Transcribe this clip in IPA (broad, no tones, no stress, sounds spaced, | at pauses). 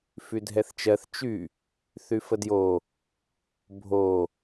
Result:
f y dʱ ɛ θ t͡ʃ ɜ θ t͡ʃ y | θ y f ə d j o | bʱ o